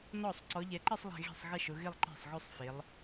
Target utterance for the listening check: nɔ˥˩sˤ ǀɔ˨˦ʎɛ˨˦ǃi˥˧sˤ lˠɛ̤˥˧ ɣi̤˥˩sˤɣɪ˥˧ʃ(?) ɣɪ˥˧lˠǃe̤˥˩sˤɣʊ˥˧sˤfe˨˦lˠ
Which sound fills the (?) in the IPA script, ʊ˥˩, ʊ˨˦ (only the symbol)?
ʊ˨˦